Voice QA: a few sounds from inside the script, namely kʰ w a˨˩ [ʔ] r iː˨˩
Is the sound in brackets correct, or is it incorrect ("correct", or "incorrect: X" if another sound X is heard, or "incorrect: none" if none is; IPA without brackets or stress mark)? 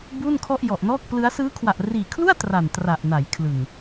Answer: correct